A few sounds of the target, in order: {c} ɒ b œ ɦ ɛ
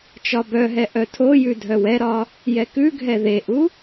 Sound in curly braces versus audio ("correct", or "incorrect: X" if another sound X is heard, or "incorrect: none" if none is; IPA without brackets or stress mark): incorrect: t͡ʃ